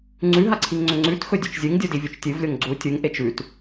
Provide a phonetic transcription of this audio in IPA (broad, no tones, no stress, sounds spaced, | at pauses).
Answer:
ŋ͡ǀ ʉ ɦ a ǀʰ i ŋ ŋ͡ǀ ɵ ŋ͡ǀ ʉ t x ɵ dʲ u t͡ʃ zʲ ɨ ŋ dʲ u d i vʲ o t͡ʃ tʲ ɨ v lʲ o ŋ ɡ͡ǀ u tʲ u ŋ ʔ e t͡ʃ ʉ t